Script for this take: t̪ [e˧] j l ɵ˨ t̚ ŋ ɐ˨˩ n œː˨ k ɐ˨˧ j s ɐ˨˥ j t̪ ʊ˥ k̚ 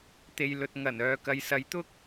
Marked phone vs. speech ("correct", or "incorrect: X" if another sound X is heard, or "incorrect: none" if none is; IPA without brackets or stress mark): incorrect: e˨